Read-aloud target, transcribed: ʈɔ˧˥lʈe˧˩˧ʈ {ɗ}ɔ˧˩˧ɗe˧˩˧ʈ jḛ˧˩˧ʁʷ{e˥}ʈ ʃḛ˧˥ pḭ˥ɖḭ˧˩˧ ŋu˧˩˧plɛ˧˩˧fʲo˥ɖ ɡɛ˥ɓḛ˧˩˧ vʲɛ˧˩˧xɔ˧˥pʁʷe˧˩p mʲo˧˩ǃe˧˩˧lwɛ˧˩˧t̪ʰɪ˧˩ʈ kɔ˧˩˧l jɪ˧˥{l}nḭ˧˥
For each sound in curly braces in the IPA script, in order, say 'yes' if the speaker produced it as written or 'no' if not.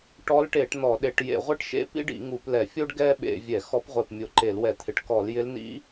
no, yes, yes

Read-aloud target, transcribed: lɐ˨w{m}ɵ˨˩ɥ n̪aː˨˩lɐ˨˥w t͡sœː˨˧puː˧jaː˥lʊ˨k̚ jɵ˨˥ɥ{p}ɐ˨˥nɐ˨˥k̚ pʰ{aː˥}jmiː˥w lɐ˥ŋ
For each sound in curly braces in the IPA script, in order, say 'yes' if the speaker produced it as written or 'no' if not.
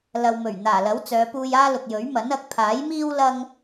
yes, no, no

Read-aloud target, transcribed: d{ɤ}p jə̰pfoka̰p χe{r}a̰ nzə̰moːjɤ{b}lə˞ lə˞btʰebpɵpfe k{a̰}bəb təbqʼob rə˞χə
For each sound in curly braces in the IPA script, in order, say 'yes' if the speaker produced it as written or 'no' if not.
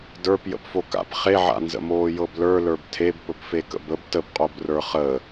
no, no, yes, no

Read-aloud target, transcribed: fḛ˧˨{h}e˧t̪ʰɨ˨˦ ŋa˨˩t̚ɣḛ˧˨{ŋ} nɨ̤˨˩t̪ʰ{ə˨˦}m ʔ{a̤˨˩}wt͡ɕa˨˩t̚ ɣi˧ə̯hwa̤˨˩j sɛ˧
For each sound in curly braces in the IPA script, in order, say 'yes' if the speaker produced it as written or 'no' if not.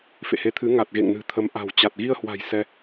yes, yes, yes, yes

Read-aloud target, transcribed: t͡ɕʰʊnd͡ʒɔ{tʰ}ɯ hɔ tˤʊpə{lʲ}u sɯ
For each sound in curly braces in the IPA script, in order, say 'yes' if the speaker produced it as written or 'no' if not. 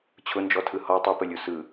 yes, yes

